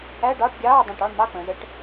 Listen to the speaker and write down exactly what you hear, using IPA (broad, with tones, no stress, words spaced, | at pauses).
æ˧˥˧ɖɑː˧˥˧ʈɡʲɑː˧˥˧ dˤə̃ː˦˨ʈɑ˧˥˧ɳmɑ˧˥˧ k͡pə̃ː˩˧zə˧˥˧ʈ